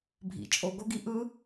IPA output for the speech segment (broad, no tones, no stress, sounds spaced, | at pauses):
bʱ ḭ t͡ʃʼ o ɡ o ɡ i ʔ ɯ